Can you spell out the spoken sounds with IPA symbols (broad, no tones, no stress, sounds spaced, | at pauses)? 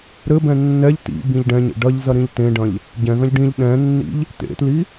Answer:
ɾ ɘ b ɛ̃ nː ɛ ʎ t ḭ b ĩ ʎ ɖ ɛ̃ ɲ ḛ ɖ ɐ ʎ z ɐ ɾ ĩ ʎ t ẽ ɖ ɐ̃ ʎ | ɟ ɛ̃ ɣ ɐ̃ ʎ ɖ ĩ ʎ ɗ ɛ̃ nː ḭ ʎ | t̪ ḛ t l i